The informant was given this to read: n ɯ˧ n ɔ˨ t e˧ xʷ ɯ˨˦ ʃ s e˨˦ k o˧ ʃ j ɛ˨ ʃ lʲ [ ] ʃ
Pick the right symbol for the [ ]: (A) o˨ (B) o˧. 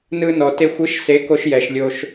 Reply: B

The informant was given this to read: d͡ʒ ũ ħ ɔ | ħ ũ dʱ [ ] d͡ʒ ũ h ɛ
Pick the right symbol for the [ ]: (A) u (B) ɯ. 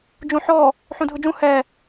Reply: B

